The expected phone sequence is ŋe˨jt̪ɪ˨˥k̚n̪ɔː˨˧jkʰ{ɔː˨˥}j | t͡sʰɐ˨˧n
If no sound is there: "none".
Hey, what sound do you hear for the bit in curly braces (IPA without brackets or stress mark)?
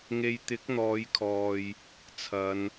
ɔː˨